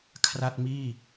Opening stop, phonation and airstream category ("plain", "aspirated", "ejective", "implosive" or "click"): aspirated